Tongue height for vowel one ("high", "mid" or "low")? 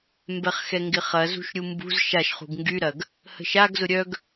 mid